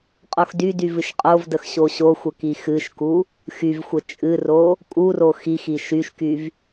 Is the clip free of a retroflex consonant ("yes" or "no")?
yes